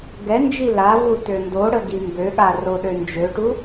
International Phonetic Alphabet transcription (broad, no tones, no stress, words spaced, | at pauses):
ɡɛnd͡ʒi lavu tøndoɽə ɡimbøɠa roɗønd͡ʒøʈu